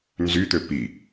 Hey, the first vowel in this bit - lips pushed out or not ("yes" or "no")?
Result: yes